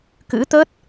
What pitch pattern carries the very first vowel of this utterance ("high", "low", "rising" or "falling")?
rising